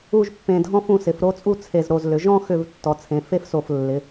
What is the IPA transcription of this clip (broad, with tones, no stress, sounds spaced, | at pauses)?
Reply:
u˥˧ ʒ pː ẽ˧ dʱ ɔ̃˥ f ũ˧ s ɪ˩˧ f ɾ o˥˧ t͡sʼ u˥˧ t͡sʰ e˧˩ z ɾ o˧˩ z l ʏ˩˧ ʒ ɔ̃˥˧ x ʏ˧˩ v tː ɔ˩˧ t͡sʰ ẽ˩˧ f e˥ f s o˧˩ f lː ɪ˩˧